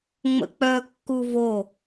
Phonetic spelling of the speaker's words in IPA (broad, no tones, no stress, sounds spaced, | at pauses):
ŋ͡m ə̰ k͡p œ kː u v o